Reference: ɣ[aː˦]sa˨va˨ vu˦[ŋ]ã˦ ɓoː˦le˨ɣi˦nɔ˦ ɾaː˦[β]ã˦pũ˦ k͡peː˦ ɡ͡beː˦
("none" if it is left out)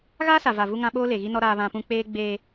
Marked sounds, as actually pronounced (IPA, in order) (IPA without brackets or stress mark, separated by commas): aː˦, ŋ, β